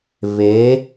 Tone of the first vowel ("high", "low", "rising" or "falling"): rising